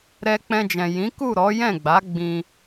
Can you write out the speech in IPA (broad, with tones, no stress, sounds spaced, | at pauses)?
ɾ ɛ˧ k͡p ɛ̃˧ d͡ʒ ɛ̃˨ j ĩ˨˦ k u˦˨ ɾ ɔ˨˦ j ɛ̃˦˨ ɡ͡b a˨˦ ɡ͡b ĩ˧